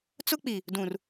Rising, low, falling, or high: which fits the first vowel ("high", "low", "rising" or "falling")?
high